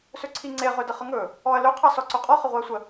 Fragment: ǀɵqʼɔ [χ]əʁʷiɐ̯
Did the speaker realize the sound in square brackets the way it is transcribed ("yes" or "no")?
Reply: yes